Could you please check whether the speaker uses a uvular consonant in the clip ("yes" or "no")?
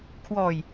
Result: no